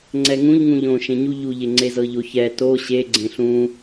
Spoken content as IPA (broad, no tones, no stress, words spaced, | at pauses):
ŋ͡ǀɛŋũʎ ŋũʎõ ʃẽɲu ʎuʎe ŋ͡ǀezɤʎoçɛ to ɕeɡ͡ǀẽ ɬũ